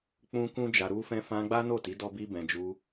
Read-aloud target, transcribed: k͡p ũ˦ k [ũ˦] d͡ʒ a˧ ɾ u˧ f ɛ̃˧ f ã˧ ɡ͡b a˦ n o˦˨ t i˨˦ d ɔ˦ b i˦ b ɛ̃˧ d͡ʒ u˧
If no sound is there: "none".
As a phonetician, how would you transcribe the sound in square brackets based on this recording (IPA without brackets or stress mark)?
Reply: ũ˦